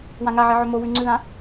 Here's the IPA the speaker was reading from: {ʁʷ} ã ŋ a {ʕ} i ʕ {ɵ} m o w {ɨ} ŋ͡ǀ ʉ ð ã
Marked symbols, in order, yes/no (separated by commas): no, yes, yes, no